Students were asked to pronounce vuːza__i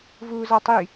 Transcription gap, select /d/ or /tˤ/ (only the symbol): tˤ